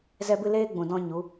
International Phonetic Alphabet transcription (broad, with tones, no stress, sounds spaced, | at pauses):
z ɛ˦ b ɨ˦ l eː˦ ɡ͡b ũ˨ d ɔ̃˧ ɲ u˨˦